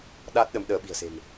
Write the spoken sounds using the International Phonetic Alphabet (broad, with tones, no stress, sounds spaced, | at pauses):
ɗ a˦˥ t̚ ɗ ə˨˦ m ɗ əː˨˦ ɓ i̤˨˩ ə̯ s e̤˨˩ m